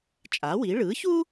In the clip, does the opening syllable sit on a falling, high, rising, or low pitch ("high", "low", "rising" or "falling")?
rising